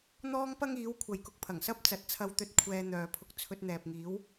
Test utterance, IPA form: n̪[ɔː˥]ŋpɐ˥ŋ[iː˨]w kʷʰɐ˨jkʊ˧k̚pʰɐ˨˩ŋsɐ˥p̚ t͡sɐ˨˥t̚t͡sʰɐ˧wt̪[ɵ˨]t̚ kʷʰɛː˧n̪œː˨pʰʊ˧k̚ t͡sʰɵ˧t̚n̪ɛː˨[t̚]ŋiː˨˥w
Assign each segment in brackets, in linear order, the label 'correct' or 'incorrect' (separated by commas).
correct, incorrect, incorrect, incorrect